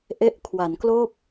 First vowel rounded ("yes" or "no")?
no